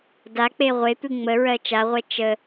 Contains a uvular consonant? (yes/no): yes